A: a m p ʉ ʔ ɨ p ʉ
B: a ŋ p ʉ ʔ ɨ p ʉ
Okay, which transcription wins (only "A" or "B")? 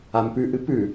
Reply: A